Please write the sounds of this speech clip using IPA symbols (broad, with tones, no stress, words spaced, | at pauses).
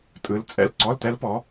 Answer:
tʼɯ˨˦l t͡sʼɛ̰˧˥˧l ǀɔ˧˥˧ltɛ˦˥lpɔ˨˦